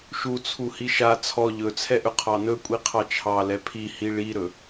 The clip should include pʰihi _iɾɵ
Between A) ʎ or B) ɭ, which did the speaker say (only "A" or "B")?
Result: B